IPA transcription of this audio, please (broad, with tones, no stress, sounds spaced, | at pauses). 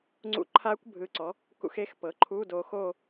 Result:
ŋ͡ǀ ṵ˧˥˧ ǃʰ a˦˥ kʷ bʱ ɯ˨ ǀ ɔ˩˥ | k ṵ˨ x e˦˨ x p ɤ˩˥ ǃʰ u˧˥˧ d o˨ x o˦˨